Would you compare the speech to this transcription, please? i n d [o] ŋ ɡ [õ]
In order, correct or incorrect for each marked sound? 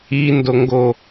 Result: correct, incorrect

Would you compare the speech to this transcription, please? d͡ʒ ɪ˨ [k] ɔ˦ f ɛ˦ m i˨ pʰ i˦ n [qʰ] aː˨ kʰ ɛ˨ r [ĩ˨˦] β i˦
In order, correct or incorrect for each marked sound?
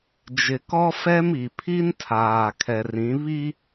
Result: correct, incorrect, correct

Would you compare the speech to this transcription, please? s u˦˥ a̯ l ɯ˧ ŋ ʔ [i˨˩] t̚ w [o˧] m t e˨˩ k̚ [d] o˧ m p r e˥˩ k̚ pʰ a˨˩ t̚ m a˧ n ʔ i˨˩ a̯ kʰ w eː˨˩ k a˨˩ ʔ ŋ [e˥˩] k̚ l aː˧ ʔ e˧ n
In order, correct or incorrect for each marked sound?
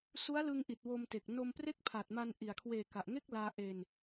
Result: correct, correct, incorrect, correct

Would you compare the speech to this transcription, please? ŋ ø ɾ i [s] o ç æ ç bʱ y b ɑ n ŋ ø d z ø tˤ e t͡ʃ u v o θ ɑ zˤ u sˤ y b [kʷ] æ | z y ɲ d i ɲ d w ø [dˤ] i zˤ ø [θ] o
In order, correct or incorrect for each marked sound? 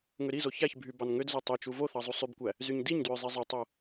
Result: incorrect, correct, incorrect, incorrect

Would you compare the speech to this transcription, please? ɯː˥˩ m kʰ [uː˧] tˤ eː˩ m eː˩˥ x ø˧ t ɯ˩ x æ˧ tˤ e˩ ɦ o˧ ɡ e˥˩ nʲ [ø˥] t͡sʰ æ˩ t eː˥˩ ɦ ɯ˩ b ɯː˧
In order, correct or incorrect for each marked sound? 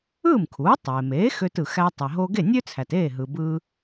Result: incorrect, correct

